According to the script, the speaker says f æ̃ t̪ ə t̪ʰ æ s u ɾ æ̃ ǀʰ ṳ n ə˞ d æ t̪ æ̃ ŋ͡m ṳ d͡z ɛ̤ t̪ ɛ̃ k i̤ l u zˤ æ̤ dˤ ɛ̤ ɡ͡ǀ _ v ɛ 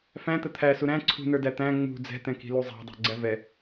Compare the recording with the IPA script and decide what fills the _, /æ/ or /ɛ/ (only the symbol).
æ